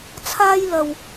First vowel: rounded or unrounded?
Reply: unrounded